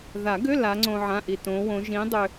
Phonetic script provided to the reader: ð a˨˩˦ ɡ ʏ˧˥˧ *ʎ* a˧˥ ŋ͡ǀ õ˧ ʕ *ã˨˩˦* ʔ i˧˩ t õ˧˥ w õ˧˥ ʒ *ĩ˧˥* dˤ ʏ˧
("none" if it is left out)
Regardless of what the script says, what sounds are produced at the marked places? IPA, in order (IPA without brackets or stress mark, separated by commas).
l, ã˧˥˧, ĩ˧˥